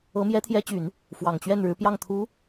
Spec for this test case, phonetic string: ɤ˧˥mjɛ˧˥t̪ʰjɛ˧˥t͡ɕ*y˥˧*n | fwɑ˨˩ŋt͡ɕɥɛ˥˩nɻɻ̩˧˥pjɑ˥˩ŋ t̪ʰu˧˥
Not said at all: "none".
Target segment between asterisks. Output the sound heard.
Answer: y˨˩˦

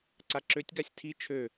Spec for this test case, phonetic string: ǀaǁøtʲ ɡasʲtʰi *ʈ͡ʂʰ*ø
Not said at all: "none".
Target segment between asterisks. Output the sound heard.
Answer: t͡ʃʰ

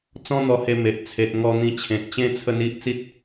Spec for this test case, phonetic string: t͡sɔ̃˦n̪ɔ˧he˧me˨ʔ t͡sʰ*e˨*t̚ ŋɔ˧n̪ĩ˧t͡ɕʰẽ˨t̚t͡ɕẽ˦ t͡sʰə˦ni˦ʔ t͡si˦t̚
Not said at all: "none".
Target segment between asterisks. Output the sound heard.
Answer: e˨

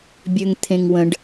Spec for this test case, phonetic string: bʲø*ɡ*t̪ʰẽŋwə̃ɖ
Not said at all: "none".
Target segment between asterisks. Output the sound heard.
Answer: ŋ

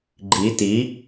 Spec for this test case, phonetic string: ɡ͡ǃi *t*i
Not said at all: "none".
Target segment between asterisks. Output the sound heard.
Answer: t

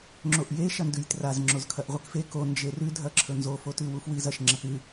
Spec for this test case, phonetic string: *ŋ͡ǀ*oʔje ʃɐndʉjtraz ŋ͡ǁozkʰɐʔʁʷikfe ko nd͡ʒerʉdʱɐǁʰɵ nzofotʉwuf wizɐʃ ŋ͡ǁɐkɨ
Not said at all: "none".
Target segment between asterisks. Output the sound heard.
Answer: ŋ͡ǁ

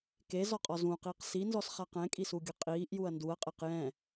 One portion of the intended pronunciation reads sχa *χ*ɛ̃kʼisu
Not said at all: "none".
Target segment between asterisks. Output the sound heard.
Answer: q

